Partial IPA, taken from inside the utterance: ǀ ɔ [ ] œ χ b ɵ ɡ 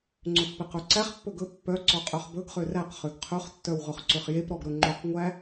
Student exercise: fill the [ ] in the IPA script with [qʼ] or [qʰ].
qʼ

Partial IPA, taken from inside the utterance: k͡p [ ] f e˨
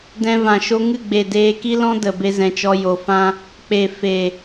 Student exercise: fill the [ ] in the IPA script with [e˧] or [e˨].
e˨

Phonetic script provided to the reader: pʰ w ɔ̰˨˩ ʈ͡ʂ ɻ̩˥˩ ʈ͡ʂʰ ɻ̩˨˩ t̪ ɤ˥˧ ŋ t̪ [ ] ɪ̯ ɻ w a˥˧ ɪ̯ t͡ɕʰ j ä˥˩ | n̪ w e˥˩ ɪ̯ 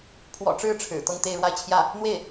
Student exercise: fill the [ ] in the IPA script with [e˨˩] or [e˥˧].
e˥˧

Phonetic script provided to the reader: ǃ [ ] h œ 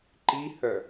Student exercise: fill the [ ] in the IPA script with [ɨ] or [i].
i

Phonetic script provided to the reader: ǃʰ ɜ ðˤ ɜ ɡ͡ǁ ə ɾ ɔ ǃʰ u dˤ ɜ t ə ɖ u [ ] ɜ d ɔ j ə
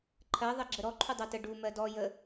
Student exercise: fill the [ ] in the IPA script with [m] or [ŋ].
m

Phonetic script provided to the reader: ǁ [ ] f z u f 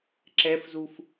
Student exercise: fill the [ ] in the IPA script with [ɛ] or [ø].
ɛ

